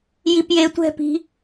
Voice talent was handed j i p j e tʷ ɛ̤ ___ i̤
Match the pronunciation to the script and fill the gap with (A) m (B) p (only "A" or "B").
B